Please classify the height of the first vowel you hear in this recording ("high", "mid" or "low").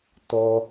mid